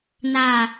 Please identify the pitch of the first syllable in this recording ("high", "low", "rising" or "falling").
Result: falling